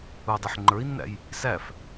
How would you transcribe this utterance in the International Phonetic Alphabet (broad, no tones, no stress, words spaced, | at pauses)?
udˤiħ ŋ͡ǃə˞i̯nːæ̰j | sæf